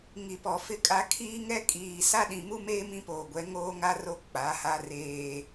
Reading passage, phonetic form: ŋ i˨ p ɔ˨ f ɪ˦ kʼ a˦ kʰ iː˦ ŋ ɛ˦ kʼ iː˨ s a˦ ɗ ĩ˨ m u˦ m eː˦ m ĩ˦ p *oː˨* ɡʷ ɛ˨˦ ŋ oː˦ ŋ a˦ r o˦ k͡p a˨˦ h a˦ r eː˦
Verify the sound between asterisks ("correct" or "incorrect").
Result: correct